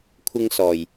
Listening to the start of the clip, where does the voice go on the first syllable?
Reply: high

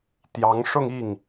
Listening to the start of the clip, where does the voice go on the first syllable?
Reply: rising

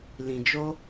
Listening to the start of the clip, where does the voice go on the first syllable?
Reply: low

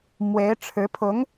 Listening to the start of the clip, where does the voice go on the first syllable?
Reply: rising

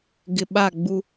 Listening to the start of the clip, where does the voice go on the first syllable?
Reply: low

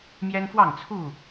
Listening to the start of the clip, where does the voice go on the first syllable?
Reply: high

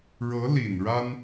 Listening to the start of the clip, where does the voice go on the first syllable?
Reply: rising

